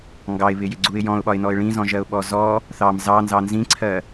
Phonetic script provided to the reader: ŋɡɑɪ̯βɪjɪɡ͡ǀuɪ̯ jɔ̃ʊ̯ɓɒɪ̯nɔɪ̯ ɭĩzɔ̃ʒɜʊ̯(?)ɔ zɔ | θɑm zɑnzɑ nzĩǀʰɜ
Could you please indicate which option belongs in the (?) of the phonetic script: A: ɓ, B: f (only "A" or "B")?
A